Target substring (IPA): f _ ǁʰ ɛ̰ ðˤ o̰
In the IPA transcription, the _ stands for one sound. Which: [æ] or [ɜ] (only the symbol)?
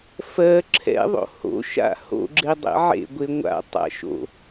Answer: ɜ